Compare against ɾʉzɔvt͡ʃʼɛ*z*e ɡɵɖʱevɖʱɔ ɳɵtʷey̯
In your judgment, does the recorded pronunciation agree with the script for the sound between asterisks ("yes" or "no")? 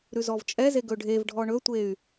yes